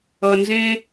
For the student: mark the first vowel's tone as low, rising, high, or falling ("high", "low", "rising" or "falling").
low